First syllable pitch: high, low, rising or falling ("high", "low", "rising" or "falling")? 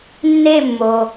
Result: falling